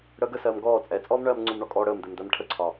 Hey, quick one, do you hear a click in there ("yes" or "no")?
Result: yes